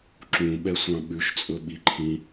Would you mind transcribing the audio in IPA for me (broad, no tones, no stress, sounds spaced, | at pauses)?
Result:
ǁ ũ ɓ ɛ sʷ ɑ̃ ɓ ʉ ʃ t͡sʼ ɵ ɓ i ǃʰ ĩ